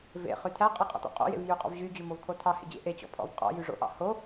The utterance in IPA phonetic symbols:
v ḛ χ y tʰ æ qʼ e qʼ ɔ̰ t o̰ qʼ o̰ j ḛ v j y qʼ ɔ̰ v ʑ y d͡ʑ ʉ m o v kʰ o tʰ ɑ h ḛ d͡ʑ ḛ ʔ e t͡ɕ ɔ̰ pʰ ɔ̰ v qʼ ɔ̰ j y ʐ o̰ ʔ ɑ̰ h o

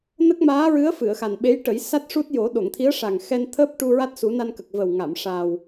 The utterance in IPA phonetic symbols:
n ə˦˥ k̚ m aː˧˥ ɹ ɨ˧˥ ə̯ f ɨ˨˩˨ ə̯ x a˨˩ n ɓ e˧˥ j ʈ ə˨˩˦ j s a˦˥ t̚ ʂ u˦˥ t̚ j o˨˩˦ ɗ o˨˩˨ ŋ t̪ʰ i˧˥ ə̯ ʂ a˨˩ ŋ x ɛ˧ n t̪ʰ əː˦˥ p̚ ʈ u˧ ɹ a˦˥ t̚ s u˨˩˦ n a˧ n k ə˨˩ k̚ v ə˨˩ w ŋ a˨˩˨ m ʂ aː˨˩ w

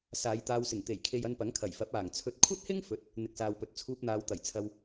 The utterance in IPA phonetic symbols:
s aː˨˧ j t̪ aː˧ w s ɪ˨˩ ŋ t̪ e˨˩ j kʰ e˨ j ɐ˧ n p ɐ˨˥ ŋ kʰ ɐ˨˩ j f ɐ˨˥ p̚ aː˨˩ ŋ t͡sʰ ɵ˧ t̚ kʷʰ ɐ˥ t̚ h ɪ˥ ŋ f ɵ˧ t̚ | n̪ ɪ˨ k̚ s aː˨ w p ɵ˨ t̚ t͡sʰ uː˧ p̚ n̪ aː˨˧ w t̪ ɐ˨˩ j t͡sʰ ɐ˧ w

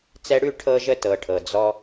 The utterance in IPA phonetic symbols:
t͡s ɛ˧ ɽ ʉ˦˨ ʈʰ ɤ˧ ʒ ə˧ t ɤ˨ ʈʰ ɤ˨ d͡z ɔ˦

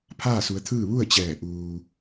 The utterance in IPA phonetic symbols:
pʰ aː˥˨ s u˩˧ ə̯ t̪ʰ ɯː˥˨ ʋ u˥˨ ə̯ t͡ɕ ɛː˧˩ ʔ uː˧

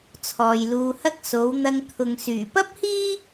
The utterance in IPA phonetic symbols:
t͡sʰ ɔː˨ j l uː˧ h ɐ˥ k̚ s o˨˧ w n̪ ɐ˧ ŋ t̪ʰ ʊ˨ ŋ s yː˨˩ p ɐ˥ p̚ h iː˥

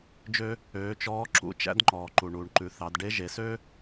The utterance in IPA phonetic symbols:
d͡ʒ ø˥ | øː˩˧ t͡ʃ ɔː˧˥ ǁ ṵ˧˥ t͡ʃ æ̰˥ d ŋ͡ǃ ɔː˩ ǃ u˩ ɳ uː˩ ɳ ǃ ʉ˩˧ θ ɑ˩˧ d ɖ e˧˥ ʒ e˩˧ s ø˥

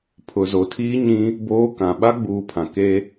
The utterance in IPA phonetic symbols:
pʰ ʊ˨ z o˨ tʰ iː˦ ɲ ĩ˦ | b oː˦ k ã˨ ɓ a˦ ɡ͡b uː˨ pʰ ã˨ k e˦

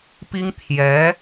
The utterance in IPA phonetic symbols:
p i˥ ŋ t̪ʰ j ɛ˧˥

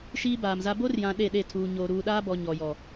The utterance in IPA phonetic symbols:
ʃ iː˦ b aː˨ m z a˦ b o˦ r j ã˨ ɗ e˦˨ ɗ e˦˨ tʰ uː˨ ɲ oː˨ ɾ uː˨ ɗ aː˦ b ɔ˨ ɲ ɔ˨ j ɔ˨

